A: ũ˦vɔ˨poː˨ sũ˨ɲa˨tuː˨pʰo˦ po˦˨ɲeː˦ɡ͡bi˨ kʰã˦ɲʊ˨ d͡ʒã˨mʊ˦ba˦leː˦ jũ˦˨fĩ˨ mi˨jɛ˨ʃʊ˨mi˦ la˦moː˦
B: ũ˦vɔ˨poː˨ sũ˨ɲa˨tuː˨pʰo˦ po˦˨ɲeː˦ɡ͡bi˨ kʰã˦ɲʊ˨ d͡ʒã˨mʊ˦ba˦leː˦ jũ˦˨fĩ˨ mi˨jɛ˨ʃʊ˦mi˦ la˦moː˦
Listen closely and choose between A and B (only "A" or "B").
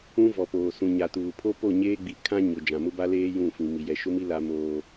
B